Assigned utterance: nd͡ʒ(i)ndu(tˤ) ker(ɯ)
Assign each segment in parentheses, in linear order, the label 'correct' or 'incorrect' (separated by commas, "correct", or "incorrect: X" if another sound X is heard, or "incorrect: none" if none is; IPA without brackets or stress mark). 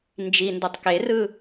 correct, correct, correct